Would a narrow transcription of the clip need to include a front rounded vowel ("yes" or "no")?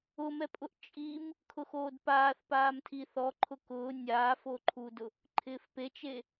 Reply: no